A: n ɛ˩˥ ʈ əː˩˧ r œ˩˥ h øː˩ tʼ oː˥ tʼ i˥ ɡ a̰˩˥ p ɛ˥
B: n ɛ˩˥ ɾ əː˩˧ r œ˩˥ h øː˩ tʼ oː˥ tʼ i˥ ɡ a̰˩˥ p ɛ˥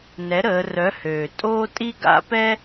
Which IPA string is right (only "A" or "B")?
B